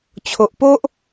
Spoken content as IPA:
t͡ɕʰ o˨ ʔ p o˦ ʔ

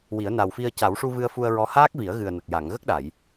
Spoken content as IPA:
w i˨˩˦ ə̯ n a˨˩ w f i˧ ə̯ c a˨˩˦ w ʂ u˧ v ɨ˧ ə̯ f u˧ ə̯ ɹ ɔ˧˥ h aː˦˥ k̚ v i˨˩˦ ə̯ ɣ ɨ˨˩ ə̯ n ə˨˩ k̚ j a˨˩˨ ŋ ɣ ə˦˥ k̚ ɗ a˨˩˨ j

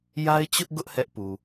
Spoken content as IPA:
j a˦ ɪ̯ t͡ɕ ʊ˦ ʔ ɡ ʊ˦ ʔ h ɛ˦ ʔ p u˨

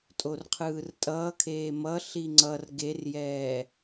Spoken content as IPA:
tʼ o r qʰ ɯː r tʼ ʌː kʰ eː m ʌ ɬ i ŋ͡ǀ ʌ r ɡ e r j ɛː

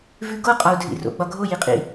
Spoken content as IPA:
v ʉ ɡ o qʼ ɒ u̯ dʱ ḭ r o̰ ɡ͡b ɒ ɡʱ o j i qʼ ḭ

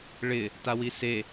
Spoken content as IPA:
ɭ ɪ | t a w i s e

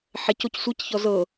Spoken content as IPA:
ħ ɛ c o c sʷ i c ç ɔ z ɤ

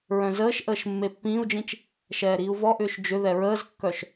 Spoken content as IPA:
ɹ œ̃ z əː ʃ ʔ əː ʃ mː e pː ĩː u̯ d͡ʒ ĩ t͡ʃ | ʃ ɛː ɾ iː u̯ v ɔ ʔ ʏː ʃ d͡ʒ ʏ ð ɛ ɹ əː z kː œ ʃ

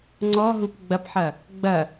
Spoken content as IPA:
ŋ͡ǀ ɔ ɦ u p ɡ͡b ɐ p ħ ɐ | ɡ͡b ɐ

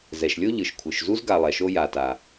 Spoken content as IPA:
z ɛ˩ ʃ lʲ o˥ ʎ ɯ˩ ʃ kʷʰ ɯ˩ ʃ z u˥ z ɡ a˨ lˠ ɛ˩ ʃ o˦ j a˩ t a˩

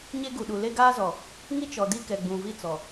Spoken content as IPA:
ɲ e˦ ɡ u˨ ɗ u˨ l e˦ ɡ aː˦ z ɔ˨ | ŋ i˦ t͡ʃ ɔ˨ d i˦ k ɛ˨ ɡ͡b ũ˨ v i˦ t͡s ɔ˨

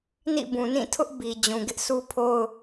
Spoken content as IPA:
n ḭ˦˨ b ũ˨ n ĩ˦˨ tʰ ʊ˦ ʔ b i˨ d͡ʑ ũ˨ ɡ ɪ˦ ʔ s u˦ pʰ o˦ ʊ̯

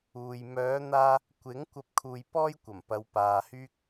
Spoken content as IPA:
uː˨ j m œː˨˧ n̪ aː˧ | kʷ ɪ˨˥ ŋ kʷ ɐ˧ p̚ kʰ uː˨ j p ɔː˥ j kʷ ɐ˨˩ m p ɐ˨˧ w p aː˨ h yː˥ k̚

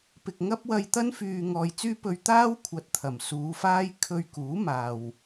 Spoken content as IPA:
p ɪ˨ k̚ ŋ ɐ˥ p̚ w ɐ˧ j t̪ ɐ˥ n f yː˨ ŋ ɔː˨ j t͡s yː˥ p ɵ˧ ɥ t̪ aː˥ w kʷʰ ɐ˧ t̚ t̪ʰ ɐ˨˩ m s uː˨˧ f aː˥ j kʰ ɵ˧ ɥ k uː˨˥ m aː˨ w

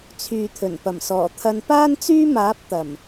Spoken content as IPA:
t͡sʰ yː˨ t̪ʰ ɵ˨˩ n p ɐ˨˩ m s ɔː˨˩ t̪ʰ ɐ˧ n p aː˥ n t͡s yː˥ m aː˨˥ p̚ t̪ ɐ˨˩ m

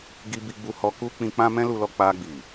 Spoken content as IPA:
ɡ i˧ b i˧ ɡ͡b u˧ h ɔ˧ k u˦ k͡p ĩ˧ k͡p ã˦ m ɛ̃˦ l u˧ l ɔ˧ k͡p a˧ ɡ͡b i˨

